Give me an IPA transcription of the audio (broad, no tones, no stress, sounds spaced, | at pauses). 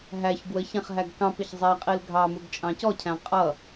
ɦ æ ç ɡ w ə ç æ̃ χ ɦ æ ɡ k ɑ̃ p ɪ ç zˤ æ qʼ i l ɡʱ ɑ m u ɡ t͡ʃʼ ɑ̃ c ɔ cʰ æ̃ qʼ ʌ